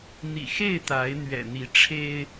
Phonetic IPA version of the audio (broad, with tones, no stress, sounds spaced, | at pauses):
n̪ ḭ˨˩ x e˥˨ ɪ̯ t̪ a˨˦ ɪ̯ n̪ ɥ ɛ̰˨˩ n̪ i˨˦ ʈ͡ʂʰ e˦ ɪ̯